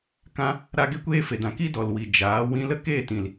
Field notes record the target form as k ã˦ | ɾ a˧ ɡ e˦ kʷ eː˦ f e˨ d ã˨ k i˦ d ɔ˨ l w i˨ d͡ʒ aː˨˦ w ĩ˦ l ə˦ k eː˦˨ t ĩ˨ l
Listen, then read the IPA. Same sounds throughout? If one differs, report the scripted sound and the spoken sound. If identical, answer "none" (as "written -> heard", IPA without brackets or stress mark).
none